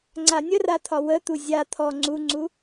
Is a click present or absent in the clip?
present